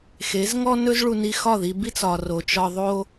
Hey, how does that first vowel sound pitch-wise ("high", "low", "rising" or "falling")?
rising